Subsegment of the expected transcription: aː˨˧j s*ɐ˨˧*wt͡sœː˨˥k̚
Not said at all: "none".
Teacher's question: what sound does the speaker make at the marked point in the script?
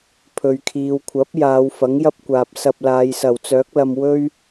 ɐ˨˩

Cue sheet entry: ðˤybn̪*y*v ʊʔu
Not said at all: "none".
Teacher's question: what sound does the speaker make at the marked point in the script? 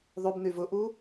y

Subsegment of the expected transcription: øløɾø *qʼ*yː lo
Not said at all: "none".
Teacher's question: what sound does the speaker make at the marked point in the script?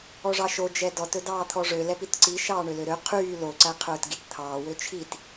qʰ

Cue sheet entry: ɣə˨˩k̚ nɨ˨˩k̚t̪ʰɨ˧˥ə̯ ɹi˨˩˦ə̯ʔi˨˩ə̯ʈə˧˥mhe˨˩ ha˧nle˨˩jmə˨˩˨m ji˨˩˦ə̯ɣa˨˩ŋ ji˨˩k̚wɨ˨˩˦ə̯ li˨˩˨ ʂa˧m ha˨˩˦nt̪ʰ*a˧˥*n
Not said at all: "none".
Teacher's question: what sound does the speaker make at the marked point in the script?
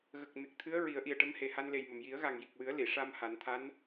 a˧˥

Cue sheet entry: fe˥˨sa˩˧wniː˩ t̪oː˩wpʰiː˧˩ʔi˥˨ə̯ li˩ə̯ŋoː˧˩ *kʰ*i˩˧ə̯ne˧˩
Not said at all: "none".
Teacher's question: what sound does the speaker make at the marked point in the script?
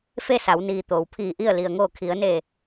kʰ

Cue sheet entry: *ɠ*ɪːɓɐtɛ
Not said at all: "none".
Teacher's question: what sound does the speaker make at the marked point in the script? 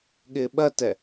ɠ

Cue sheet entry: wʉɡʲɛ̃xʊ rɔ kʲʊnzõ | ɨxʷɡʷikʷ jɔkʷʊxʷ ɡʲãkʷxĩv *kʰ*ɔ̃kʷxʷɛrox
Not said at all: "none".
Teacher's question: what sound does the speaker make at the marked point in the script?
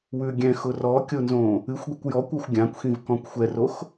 k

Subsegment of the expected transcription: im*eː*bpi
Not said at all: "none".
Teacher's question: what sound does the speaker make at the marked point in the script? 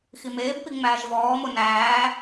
eː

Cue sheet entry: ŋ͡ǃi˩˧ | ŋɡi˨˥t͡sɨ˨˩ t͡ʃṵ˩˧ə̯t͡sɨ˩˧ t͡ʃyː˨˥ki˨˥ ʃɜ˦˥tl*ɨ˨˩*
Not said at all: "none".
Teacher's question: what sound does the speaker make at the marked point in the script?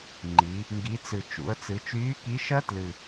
ɨ˨˩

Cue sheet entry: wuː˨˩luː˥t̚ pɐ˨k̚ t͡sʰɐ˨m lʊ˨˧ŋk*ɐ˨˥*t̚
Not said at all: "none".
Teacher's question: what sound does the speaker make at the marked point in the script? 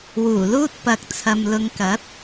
ɐ˨˥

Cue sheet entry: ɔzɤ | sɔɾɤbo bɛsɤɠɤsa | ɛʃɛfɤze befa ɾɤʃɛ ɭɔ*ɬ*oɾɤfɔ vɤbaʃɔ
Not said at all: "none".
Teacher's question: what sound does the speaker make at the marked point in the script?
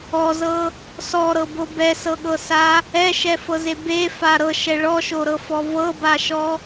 ʃ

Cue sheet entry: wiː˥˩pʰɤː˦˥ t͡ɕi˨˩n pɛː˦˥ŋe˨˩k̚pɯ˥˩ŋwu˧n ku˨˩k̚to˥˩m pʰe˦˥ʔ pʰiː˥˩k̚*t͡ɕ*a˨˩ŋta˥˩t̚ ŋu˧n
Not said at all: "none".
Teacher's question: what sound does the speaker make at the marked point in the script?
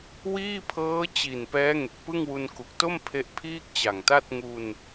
t͡ɕ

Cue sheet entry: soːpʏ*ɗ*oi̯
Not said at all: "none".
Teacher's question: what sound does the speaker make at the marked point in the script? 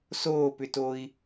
t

